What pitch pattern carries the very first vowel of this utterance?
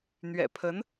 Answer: low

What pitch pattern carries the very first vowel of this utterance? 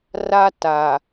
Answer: high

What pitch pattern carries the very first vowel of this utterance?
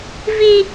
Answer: high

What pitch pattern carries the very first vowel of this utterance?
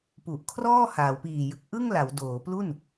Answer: low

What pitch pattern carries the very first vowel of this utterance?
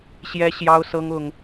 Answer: high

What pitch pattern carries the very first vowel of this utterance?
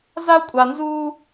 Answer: high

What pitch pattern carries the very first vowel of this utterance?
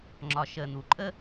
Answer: low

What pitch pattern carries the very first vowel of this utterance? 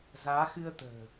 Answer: rising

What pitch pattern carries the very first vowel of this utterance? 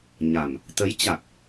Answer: low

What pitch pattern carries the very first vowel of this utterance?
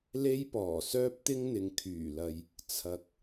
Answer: high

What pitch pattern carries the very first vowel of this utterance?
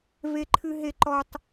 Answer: high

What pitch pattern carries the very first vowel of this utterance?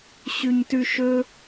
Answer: high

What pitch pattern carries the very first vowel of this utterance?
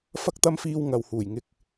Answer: high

